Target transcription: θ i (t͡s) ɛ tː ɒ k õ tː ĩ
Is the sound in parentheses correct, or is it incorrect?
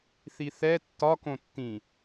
incorrect